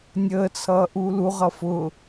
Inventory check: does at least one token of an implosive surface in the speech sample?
no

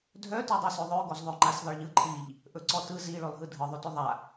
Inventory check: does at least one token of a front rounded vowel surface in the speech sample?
yes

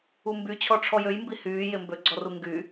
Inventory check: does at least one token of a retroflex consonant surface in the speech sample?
yes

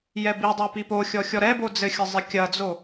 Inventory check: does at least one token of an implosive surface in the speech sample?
no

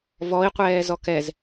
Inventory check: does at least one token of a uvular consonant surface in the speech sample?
yes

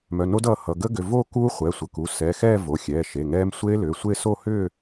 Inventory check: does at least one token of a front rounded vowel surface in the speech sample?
yes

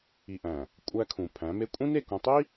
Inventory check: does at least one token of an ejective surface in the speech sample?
yes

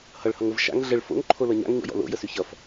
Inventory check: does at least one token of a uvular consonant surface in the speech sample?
no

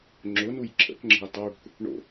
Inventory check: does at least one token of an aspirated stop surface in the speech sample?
yes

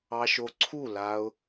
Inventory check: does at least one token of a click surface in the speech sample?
yes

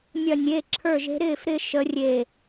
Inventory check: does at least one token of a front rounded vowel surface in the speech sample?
no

